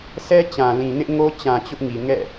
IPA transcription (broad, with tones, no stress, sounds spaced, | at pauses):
s ɛ˦ t͡ɕ ã˨ l ĩ˨ n ɪ˦ ʔ ŋ o˦ t͡ɕ ã˨ t͡ɕ ʊ˦ ʔ ŋ i˨ ŋ ɛ̰˦˨